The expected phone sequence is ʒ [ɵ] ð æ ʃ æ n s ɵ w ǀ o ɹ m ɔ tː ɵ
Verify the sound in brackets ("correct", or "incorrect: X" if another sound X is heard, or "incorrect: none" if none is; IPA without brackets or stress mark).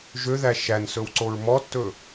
incorrect: ø